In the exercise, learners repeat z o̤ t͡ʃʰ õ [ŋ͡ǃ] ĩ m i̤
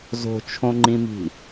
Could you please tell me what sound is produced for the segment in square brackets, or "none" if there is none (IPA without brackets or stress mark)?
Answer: ŋ͡ǃ